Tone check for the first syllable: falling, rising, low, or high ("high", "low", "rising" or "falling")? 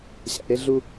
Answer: low